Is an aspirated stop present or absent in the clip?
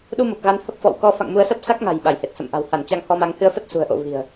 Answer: absent